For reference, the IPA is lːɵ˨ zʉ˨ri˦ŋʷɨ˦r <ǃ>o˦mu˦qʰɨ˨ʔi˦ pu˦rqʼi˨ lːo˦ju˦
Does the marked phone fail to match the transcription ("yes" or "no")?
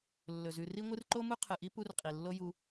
no